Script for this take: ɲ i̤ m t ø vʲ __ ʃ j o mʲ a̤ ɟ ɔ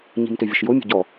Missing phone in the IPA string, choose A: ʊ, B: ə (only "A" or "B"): B